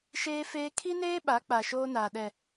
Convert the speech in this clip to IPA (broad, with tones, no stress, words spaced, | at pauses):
ʃeː˦feː˦ kʰi˦neː˦ ɓa˨˦k͡pa˨ ʃoː˦naː˨ɗɛ˨